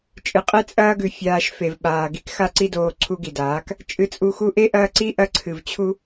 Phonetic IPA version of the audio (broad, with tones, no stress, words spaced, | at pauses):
t͡ʃʼɨ˨qʼe˦ t͡sʼɐː˦ɡʉ˨ fʲaː˧ʃfe˨vɓaː˨ ɡi˦kxa˦ǀi˦doː˧ ǀʰu˧ɡi˨daː˨˦k | t͡ʃʼɨ˧t͡sʼu˧xu˦ ʔe˦ʔɐː˧ ǀi˦ʔɐ˧ǀʰɨ˨v t͡ɕʰu˦